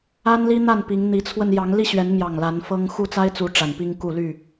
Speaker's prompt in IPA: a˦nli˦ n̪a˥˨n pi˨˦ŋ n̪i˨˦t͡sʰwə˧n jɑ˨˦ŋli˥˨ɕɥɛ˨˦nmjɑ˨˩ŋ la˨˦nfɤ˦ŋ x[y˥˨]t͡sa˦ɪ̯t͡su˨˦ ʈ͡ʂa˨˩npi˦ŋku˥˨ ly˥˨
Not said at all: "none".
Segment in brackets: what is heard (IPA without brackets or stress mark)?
u˥˨